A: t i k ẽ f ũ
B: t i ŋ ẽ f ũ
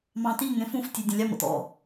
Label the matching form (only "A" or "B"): B